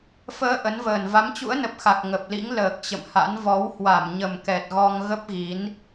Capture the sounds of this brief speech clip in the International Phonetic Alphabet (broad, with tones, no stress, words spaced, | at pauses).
fəː˧ ʔə˨˦nvəː˨˩n va˨˦mt͡ɕṵ˧˥ə̯nə˨˩p̚xa˨˩k̚ ŋə˨˩p̚lḭ˧˥ŋ ləː˨˩k̚t͡ɕə̰˧˨mha̰˧˥n vɔ˨˦whwa˧˩m ɲə˨˩mkɛ˨˩t̚ ɣɔ˧ŋ ɣə˦˥p̚ɣi˨˦n